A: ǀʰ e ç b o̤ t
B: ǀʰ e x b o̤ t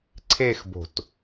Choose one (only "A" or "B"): B